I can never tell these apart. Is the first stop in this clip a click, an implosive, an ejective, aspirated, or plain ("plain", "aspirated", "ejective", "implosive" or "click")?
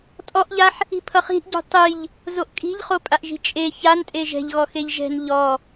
ejective